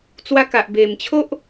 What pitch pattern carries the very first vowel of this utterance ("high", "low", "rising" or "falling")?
high